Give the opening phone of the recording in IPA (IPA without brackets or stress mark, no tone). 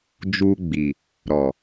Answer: d͡ʒ